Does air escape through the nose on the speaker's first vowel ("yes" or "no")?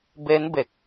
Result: no